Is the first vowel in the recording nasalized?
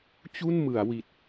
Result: no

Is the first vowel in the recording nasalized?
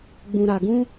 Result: yes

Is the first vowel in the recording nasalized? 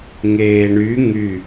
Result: no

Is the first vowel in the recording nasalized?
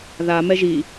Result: no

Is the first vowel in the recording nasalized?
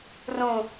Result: yes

